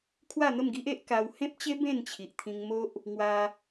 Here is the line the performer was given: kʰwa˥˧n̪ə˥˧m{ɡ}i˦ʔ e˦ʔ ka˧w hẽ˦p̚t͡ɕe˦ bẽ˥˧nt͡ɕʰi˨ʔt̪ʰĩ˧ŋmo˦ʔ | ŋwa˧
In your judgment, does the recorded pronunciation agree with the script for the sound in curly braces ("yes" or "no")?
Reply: yes